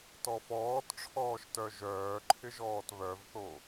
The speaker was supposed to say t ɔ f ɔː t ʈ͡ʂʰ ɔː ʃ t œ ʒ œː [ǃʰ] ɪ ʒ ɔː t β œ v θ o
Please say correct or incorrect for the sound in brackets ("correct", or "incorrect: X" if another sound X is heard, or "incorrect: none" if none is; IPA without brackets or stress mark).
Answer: correct